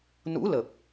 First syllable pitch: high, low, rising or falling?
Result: rising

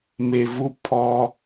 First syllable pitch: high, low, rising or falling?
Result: low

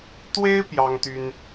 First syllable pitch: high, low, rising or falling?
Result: high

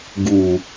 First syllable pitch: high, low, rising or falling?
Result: low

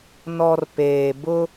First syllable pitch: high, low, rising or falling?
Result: low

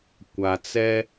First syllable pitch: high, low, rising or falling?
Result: low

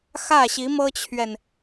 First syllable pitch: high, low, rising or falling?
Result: falling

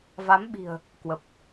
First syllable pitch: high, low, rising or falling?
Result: rising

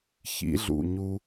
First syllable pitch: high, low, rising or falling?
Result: rising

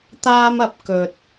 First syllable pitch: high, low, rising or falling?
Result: high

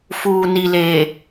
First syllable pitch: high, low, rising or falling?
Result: low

